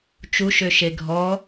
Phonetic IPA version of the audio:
t͡ʃuʃøʃe ɡʱɔ

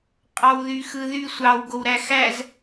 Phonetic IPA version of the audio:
qʼɑwðyxɯðy sʷɑw ɡowɾæxæz

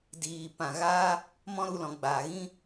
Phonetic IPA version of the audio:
diː˨ pã˨ɣaː˦ | mɔ̃˦ɾu˦˨lɔ̃˨ ɡ͡baː˨ɣĩ˦

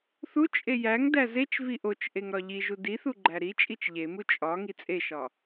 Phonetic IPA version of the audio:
θut͡ʃʼe jæŋdæ zet͡ʃvi ʔot͡ʃʔeŋ ɾɒʎiʒu diθu ɡ͡ǃæɾit͡ʃʼit͡ʃ ʎemu t͡ʃʼɒ ŋit͡sʼeʃɒ

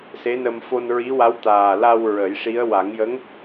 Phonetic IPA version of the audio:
se˧˥nə˧m fo˧nɹi˧˥wa˧˥w t̪aː˨˩la˧w ɹə˨˩˦jʂi˧˥ə̯ wa˨˩˦ŋjə˧˥ŋ

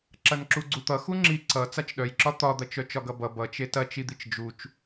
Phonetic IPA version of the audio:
ǁɐnǁuɡ͡ǀut̪ʌ xuŋ͡ǁi ǀʌ t͡sat͡ʃɗœjǁɒ t̪ɒd̪ɐt͡ʃœ t͡ʃɒɡʌbʌ bʌt͡ʃe tɐt͡ʃid̪it͡ʃ d͡ʒut͡ʃ

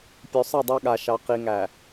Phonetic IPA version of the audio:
pʲo˨sˤɛ˦˨dˤɑ˦ɠa˨ ʃɑ˨qi˨ŋæ˨

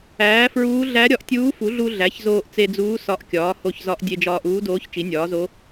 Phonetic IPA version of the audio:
æː˩˥fɹuː˧˥ ɮæ˧˥ ɾʲɒ˩˥ʔtʲuː˧˥fu˩˥ɮu˧ ɮæ˩˥çzoː˧ʔ t͡se˧d͡zuː˧˥ sɒ˧˥ʔkʲɒː˩˥ ho˧çzɒ˧˥ʔ dʲe˧d͡ʒɒː˧ʔuː˧˥doː˧˥ç t͡ʃi˩˥nʲɒː˩˥zo˧˥

